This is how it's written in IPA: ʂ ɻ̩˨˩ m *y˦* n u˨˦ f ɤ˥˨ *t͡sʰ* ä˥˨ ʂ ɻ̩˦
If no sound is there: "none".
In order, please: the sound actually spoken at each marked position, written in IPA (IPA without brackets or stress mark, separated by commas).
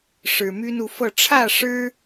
y˦, ʈ͡ʂʰ